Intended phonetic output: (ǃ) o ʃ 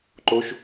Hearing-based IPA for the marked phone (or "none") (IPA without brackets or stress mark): ǃ